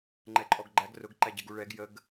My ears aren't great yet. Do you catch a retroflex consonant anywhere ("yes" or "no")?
yes